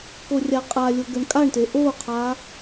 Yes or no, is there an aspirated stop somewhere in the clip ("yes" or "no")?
yes